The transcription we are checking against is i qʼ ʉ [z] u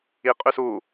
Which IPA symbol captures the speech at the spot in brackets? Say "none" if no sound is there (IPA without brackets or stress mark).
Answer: s